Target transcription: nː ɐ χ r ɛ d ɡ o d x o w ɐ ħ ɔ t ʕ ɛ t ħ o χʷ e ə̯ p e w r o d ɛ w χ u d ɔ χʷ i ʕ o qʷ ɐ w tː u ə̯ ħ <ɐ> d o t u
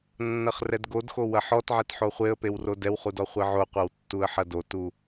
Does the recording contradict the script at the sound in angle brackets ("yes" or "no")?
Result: no